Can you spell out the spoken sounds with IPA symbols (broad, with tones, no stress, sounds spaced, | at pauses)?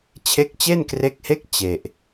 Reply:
t͡ɕʰ e˦˥ k̚ t͡ɕ e˥˩ n k r e˦˥ k̚ h e˥˩ k̚ t͡ɕ e˨˩ ʔ